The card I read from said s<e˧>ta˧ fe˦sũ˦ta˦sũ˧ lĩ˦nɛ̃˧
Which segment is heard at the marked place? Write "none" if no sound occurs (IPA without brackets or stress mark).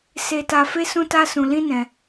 e˧